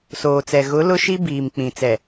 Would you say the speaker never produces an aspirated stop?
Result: yes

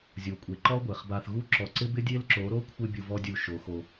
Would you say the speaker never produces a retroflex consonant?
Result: yes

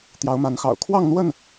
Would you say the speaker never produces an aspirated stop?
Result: no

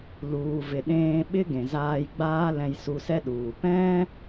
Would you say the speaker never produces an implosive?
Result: no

